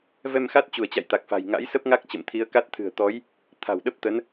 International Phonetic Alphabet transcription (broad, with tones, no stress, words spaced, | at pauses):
vɛ˧mxa˦˥t̚ t͡ɕu˧˩ə̯t͡ɕa̰˧˨j t̪a˨˩k̚fa̤˨˩j ŋa̰˧˥jsə˦˥p̚ŋa˦˥k̚ t͡ɕə̰˧˨mt̪ʰi˨˦ə̯ka˦˥t̚ t̪ʰɨ̤˨˩ə̯ t̪ɔ˨˦j | t̪ʰa̤˨˩w ɗə˦˥p̚t̪ə˨˦n